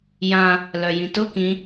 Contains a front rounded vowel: yes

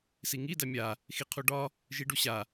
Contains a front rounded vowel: no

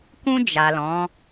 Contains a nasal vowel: yes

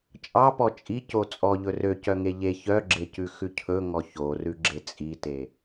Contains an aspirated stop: yes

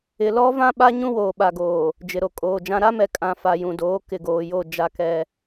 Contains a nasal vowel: yes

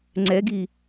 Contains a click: yes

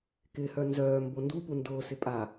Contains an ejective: yes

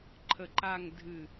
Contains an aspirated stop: yes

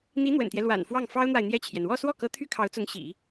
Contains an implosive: no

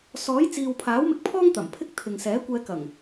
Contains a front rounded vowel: no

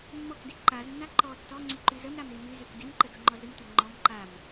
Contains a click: yes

